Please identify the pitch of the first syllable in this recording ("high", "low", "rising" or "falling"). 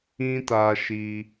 high